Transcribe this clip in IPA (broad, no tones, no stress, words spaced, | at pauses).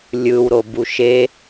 lʲɯwɾobu ʃe